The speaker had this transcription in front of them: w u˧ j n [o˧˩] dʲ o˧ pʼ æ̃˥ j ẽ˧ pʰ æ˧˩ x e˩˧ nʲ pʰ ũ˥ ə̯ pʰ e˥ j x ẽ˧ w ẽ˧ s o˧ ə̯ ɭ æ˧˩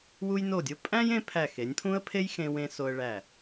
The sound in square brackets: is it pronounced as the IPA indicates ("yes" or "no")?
yes